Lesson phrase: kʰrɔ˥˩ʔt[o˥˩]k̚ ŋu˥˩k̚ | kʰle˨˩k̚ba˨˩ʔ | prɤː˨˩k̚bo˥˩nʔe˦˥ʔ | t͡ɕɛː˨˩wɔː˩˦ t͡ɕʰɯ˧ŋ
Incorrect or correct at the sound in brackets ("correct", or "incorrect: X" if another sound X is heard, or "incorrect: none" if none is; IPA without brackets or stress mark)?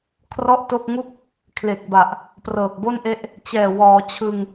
correct